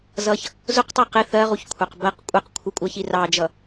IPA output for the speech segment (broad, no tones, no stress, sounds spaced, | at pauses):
z ʌ ç | z ʊ q tˤ ɛ q ɪ θ ɜ ʁ u ç kʷʰ ɑ q b ɜ q kʷʼ ɛ q kʷʰ ɪ kʷʼ ɜ ç i r ɑ d͡ʒ ʌ